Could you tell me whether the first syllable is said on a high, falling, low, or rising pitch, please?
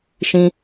high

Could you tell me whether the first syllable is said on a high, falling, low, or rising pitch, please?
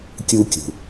high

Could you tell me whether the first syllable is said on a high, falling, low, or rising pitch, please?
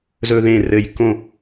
high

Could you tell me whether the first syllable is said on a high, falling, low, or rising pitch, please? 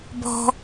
high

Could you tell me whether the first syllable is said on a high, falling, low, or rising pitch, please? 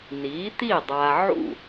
rising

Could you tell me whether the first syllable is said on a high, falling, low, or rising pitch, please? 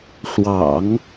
low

